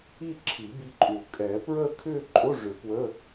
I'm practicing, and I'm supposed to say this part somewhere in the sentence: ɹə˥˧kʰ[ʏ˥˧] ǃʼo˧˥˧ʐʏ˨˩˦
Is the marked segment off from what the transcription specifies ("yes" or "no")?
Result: no